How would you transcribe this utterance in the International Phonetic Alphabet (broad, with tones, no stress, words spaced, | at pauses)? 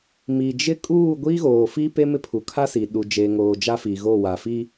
mi˨d͡ʒɪ˦ kʼuː˦˨ɡʷi˦ɣoː˨fi˦ pe˦mɪ˦ pʰu˨kʰa˦siː˨ ɗu˨ d͡ʒe˨ŋoː˨ d͡ʒa˦fi˨ɣo˦˨ wa˨fi˦